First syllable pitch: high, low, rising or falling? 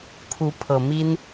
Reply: rising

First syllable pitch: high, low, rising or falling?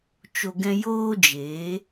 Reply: low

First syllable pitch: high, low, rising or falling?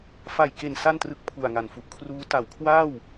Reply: low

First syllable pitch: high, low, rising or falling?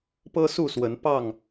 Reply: high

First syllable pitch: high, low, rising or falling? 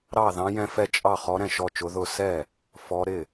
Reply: falling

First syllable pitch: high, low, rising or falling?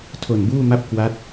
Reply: low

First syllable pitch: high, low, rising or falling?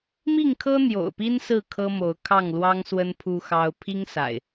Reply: falling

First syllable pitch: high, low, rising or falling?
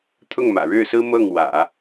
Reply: falling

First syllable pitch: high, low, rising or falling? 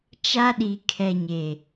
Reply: high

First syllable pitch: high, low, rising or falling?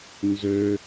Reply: high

